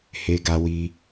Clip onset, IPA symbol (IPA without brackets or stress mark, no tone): h